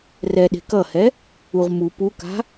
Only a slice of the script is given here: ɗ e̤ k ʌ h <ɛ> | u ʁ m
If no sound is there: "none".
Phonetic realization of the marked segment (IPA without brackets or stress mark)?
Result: ɛ